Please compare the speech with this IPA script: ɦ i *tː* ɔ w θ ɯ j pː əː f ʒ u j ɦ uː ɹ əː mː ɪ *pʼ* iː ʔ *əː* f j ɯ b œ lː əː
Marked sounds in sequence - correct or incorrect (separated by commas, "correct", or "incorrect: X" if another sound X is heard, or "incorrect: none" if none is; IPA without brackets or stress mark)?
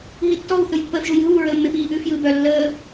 correct, incorrect: p, incorrect: ʉː